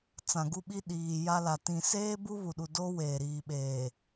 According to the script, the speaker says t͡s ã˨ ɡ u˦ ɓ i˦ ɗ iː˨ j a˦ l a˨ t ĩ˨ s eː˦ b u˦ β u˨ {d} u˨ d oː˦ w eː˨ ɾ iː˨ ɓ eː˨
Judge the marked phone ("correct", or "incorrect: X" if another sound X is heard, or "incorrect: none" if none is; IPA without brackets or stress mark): incorrect: ɗ